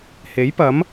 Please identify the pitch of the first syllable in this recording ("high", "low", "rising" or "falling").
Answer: rising